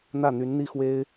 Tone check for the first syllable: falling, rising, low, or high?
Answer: falling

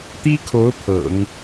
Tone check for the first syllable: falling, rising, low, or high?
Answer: high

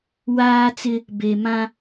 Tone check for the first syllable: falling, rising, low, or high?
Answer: high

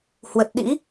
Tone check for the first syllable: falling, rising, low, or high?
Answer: low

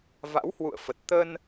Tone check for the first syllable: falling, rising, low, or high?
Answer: rising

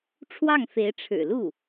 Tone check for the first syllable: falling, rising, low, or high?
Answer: falling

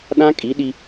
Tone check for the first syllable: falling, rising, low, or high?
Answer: high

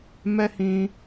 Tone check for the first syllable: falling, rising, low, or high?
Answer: high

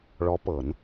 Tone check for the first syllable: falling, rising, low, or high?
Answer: rising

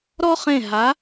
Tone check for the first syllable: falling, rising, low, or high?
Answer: high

